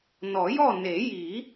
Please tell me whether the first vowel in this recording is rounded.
yes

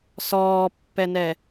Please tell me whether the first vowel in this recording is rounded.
yes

